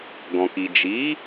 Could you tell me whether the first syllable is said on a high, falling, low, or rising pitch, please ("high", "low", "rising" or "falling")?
low